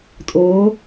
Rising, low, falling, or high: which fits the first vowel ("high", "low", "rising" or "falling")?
rising